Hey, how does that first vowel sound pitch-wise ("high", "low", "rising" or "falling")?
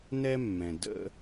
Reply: high